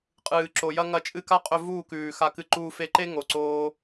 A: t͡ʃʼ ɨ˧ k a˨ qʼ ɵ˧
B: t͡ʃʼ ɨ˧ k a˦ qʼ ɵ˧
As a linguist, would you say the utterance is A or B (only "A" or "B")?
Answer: B